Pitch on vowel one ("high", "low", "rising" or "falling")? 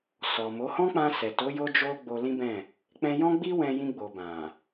low